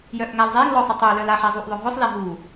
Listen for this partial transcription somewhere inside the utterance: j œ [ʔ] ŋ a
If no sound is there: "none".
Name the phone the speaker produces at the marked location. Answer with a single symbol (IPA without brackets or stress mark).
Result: ʔ